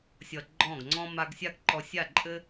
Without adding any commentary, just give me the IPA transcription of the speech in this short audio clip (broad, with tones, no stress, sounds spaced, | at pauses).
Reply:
sʲ ʌ˨ ɡ͡ǃ ɔ̃˦˨ ɡ ŋ͡ǀ ɔ̃˦ m a˧ ɡ sʲ a˦ ɡ ǃ ɔ˧ sʲ a˦˨ ǃʼ ɘ˦